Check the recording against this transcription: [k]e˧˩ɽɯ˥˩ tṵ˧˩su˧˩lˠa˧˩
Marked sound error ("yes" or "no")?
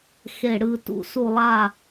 yes